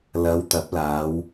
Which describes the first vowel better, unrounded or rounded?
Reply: unrounded